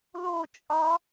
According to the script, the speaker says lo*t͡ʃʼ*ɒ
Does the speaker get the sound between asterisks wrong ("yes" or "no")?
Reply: no